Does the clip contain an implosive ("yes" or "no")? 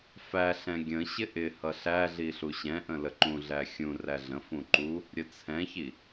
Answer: no